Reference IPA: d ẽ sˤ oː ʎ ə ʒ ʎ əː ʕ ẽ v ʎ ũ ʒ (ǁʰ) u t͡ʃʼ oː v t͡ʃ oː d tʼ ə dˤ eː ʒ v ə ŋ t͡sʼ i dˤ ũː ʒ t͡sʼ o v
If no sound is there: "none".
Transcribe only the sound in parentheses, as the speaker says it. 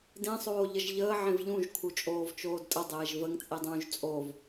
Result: kʰ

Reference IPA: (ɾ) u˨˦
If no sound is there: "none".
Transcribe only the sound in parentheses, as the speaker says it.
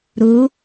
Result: ɾ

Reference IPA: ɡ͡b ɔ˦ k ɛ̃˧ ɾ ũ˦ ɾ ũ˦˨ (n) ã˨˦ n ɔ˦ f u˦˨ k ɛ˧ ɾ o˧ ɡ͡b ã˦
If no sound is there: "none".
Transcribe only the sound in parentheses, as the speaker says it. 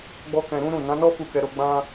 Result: n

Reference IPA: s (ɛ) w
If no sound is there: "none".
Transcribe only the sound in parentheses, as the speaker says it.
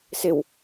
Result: ɪ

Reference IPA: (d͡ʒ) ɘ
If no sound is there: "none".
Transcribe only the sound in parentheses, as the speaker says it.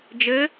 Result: d͡ʒ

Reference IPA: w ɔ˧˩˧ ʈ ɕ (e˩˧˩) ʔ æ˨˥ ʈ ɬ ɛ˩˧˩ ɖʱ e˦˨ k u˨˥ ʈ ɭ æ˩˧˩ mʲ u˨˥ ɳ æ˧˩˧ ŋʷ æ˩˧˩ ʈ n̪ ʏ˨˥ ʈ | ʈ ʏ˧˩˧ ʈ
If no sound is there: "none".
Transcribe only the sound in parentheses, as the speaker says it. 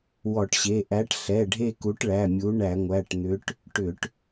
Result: e˩˧˩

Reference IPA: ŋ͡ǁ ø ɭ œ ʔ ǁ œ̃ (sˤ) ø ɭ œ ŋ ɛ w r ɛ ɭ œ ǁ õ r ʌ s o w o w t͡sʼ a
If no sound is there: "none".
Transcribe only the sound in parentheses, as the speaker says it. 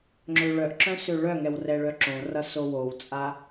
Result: s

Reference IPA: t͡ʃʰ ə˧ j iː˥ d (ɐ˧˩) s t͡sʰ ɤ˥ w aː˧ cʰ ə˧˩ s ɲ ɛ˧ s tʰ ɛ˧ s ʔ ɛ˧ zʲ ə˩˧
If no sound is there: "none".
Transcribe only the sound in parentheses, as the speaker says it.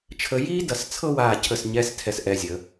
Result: ɐ˧˩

